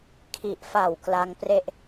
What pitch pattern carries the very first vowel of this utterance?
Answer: low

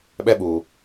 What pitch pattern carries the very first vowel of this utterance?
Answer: high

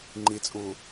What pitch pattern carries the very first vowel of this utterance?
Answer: rising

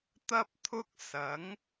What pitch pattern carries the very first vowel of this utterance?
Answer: high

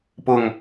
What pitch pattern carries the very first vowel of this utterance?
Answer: low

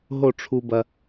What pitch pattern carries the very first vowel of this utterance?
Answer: falling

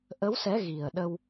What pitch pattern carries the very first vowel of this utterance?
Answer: rising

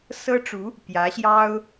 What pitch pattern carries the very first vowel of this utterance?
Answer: high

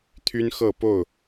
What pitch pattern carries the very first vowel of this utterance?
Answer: high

